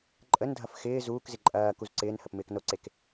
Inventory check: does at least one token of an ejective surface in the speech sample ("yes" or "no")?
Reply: yes